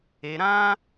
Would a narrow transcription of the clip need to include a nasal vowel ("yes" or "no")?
yes